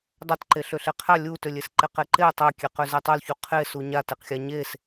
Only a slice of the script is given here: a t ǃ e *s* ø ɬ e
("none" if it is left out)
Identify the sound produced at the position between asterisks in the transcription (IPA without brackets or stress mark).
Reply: ɬ